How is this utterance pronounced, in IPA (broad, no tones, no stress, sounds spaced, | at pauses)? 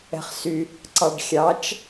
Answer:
ɛ̤ χ s y | ǀ ɑ ɖ xʲ ɑ t͡ʃ